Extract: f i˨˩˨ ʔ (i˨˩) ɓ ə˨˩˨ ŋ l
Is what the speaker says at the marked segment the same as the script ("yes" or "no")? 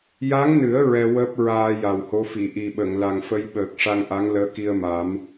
yes